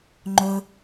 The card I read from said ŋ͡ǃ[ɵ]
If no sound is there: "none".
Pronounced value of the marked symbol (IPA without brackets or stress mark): ɵ